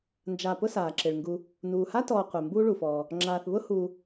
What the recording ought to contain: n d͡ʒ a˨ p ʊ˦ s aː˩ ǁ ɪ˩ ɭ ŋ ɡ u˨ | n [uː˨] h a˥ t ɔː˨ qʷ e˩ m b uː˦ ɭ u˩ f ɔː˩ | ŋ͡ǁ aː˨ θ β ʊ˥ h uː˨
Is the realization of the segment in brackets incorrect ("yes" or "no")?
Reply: yes